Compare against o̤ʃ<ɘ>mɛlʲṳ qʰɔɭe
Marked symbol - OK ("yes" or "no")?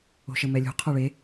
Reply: yes